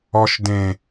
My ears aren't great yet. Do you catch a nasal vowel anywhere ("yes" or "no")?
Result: yes